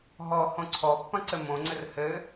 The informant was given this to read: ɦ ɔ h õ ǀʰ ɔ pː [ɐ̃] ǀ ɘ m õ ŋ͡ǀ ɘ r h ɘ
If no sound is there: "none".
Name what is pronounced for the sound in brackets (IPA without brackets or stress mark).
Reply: ɐ̃